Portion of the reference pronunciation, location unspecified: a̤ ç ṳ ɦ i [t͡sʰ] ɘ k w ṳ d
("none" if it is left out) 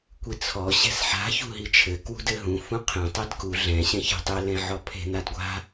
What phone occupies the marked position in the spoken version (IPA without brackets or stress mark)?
t͡ʃʰ